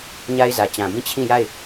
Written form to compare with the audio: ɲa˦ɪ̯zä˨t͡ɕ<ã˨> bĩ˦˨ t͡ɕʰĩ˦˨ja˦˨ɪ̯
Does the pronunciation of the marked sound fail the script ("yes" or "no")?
no